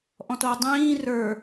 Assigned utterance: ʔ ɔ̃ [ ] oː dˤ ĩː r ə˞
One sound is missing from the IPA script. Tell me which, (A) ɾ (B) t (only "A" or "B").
B